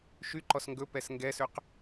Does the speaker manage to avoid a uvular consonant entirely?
no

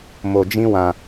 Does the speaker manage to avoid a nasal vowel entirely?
no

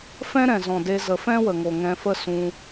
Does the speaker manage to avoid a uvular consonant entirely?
yes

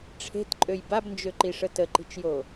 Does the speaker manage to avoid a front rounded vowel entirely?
no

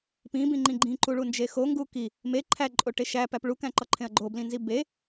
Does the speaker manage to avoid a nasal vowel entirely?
no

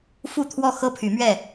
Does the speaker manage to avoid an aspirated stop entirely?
no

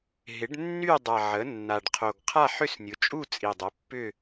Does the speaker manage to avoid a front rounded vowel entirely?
no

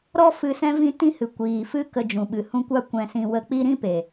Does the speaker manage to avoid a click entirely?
yes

